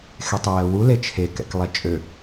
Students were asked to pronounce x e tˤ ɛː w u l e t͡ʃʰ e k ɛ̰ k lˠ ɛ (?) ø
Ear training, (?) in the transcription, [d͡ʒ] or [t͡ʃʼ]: t͡ʃʼ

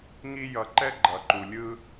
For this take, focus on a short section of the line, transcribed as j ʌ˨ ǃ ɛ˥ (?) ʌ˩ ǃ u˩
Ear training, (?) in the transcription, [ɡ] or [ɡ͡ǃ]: ɡ͡ǃ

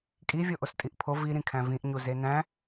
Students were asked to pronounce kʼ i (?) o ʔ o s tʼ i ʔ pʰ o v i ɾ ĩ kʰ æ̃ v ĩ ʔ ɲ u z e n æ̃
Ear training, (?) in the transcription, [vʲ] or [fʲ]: vʲ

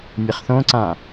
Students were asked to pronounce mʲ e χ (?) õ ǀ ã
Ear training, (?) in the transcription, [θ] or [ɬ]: θ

